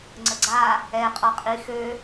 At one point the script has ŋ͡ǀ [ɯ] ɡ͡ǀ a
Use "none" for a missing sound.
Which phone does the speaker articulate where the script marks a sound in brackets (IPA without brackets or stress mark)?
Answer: ə